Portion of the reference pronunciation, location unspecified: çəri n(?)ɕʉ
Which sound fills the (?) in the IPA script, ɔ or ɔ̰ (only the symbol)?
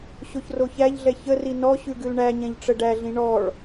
ɔ